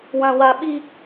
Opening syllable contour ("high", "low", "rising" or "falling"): high